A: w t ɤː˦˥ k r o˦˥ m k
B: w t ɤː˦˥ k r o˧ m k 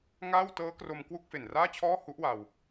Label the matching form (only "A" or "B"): B